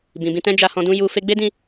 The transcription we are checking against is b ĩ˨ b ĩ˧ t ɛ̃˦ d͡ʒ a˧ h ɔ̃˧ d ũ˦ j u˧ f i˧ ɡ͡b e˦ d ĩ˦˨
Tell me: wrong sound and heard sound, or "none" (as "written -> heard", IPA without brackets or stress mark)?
i˧ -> e˧